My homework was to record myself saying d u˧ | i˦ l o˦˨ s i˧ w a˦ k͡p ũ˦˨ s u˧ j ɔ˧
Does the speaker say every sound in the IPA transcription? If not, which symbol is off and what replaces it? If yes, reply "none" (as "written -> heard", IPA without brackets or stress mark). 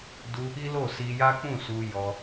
w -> j